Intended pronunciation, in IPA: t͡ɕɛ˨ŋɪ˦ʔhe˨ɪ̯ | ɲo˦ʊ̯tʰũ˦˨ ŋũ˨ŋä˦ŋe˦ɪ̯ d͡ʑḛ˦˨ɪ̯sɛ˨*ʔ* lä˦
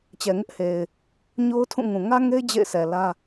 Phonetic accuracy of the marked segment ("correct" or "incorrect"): incorrect